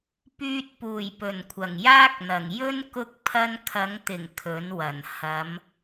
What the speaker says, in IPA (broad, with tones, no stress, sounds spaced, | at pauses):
p yː˧ t̚ p uː˨˩ j p ɵ˨˩ n kʷʰ ɐ˨˩ ŋ j aː˥ k̚ n̪ ɐ˨˩ ŋ j ɵ˥ n k ʊ˧ k̚ pʰ ɐ˧ n kʰ ɐ˨˧ ŋ t̪ ɪ˨˩ ŋ kʰ ɵ˨˥ n w ɐ˨˩ n h ɐ˨˧ m